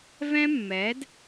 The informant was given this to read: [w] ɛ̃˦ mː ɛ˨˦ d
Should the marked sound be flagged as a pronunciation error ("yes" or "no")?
yes